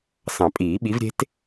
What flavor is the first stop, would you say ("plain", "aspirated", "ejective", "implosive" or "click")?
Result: ejective